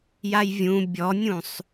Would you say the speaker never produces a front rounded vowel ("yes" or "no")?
yes